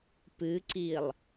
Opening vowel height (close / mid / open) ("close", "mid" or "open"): close